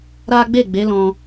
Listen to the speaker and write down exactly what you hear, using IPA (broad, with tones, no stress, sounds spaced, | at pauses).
ɾ a˦ ɡ͡b e˦˨ ɡ͡b e˨˦ l ɔ̃˧